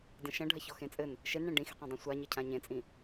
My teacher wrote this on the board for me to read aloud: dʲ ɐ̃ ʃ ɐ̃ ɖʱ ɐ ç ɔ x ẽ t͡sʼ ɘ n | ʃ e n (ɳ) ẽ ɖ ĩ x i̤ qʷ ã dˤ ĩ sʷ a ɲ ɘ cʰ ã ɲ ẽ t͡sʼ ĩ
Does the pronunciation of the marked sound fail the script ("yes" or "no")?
no